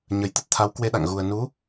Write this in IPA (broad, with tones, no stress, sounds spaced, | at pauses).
ɲ ə˨˩ j t̪ ə˦˥ t̚ t̪ʰ a˨˦ w k w e˧ ɗ a̰˧˨ ŋ ɣ u˨˩ ə̯ n u˨˦